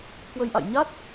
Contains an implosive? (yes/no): no